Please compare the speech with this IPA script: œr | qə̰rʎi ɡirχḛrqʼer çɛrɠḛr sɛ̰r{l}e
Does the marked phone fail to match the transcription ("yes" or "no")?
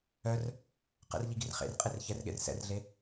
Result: yes